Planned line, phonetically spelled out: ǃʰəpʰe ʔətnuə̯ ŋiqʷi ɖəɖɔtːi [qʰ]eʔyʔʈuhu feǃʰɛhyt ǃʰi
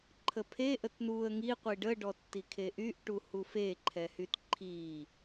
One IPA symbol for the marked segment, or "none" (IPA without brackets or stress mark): kʰ